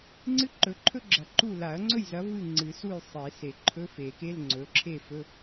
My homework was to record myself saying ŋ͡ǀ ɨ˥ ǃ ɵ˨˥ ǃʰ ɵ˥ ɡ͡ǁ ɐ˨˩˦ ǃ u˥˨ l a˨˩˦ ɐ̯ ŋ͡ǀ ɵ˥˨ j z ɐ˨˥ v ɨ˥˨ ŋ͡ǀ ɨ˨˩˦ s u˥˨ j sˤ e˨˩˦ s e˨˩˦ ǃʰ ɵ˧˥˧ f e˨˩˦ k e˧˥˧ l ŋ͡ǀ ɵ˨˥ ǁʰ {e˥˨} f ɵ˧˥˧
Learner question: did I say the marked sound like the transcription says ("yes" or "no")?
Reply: yes